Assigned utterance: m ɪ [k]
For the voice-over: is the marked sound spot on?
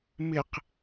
no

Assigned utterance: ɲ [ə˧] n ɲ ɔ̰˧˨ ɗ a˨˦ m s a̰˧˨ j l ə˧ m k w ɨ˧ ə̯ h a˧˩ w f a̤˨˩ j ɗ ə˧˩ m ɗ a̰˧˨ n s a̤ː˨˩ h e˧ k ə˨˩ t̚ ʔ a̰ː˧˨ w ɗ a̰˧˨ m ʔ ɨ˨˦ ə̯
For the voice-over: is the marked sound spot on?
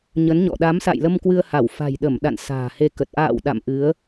no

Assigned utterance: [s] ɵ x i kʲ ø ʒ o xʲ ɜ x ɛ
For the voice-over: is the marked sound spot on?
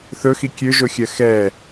no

